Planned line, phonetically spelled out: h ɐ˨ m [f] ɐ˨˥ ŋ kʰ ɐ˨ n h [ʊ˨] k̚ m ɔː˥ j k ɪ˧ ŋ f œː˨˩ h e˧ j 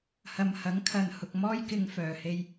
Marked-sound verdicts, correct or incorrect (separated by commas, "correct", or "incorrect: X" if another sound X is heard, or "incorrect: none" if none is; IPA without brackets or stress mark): incorrect: h, correct